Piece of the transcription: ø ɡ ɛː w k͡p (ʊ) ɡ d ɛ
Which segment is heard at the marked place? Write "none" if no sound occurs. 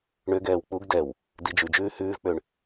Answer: u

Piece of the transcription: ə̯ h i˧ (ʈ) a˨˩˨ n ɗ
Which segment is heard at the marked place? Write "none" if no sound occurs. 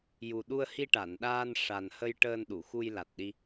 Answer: ʈ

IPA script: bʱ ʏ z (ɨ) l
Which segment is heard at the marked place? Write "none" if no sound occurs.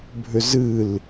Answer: ɨ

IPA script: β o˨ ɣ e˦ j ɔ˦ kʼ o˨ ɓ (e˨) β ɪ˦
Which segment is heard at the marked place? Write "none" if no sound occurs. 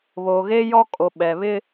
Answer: ɛ˨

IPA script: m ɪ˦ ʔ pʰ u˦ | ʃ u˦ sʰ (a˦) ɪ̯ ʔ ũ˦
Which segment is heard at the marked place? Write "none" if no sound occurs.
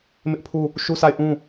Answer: a˦˨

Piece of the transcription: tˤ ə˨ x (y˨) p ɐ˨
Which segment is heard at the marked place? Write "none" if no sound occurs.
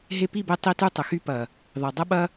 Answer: y˦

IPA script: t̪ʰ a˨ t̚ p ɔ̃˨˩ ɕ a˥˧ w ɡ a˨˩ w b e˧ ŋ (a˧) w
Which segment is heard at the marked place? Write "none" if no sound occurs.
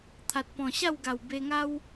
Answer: a˦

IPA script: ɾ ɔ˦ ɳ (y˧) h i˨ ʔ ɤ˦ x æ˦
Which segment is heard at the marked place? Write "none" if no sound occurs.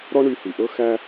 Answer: y˧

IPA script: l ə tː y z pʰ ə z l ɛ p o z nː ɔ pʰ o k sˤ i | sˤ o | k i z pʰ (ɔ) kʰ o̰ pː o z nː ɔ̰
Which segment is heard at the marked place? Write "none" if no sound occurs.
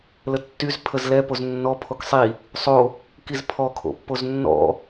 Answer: ɔ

